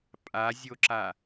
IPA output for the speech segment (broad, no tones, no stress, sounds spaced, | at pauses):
pʼ a zʲ o ǁ a